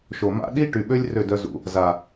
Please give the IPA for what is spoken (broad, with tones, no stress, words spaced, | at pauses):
ʃo˨ma̰˦ ɗi˦ ʈy˨ɓø˦lʲ rø˦˨dœ˧zṵ˨ | za˨